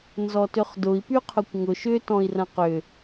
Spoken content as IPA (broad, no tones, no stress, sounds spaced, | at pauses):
n z ɔ t ʏ χ d ʊ i̯ p y qʰ ʊ kʷ ŋ ʊ ʃ ʏ t ɔ̃ i̯ r ɐ̃ q ʏ